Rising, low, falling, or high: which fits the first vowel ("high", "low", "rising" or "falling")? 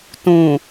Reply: low